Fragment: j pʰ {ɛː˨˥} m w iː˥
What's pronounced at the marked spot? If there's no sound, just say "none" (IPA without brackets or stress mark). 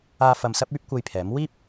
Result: ɛː˨˥